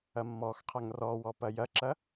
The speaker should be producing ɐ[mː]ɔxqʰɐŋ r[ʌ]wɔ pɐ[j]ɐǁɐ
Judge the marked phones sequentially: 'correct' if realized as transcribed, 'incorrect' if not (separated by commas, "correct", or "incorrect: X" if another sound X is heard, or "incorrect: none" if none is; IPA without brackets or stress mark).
correct, incorrect: ɔ, correct